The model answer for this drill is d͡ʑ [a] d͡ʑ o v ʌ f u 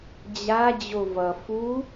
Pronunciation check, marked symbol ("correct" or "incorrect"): correct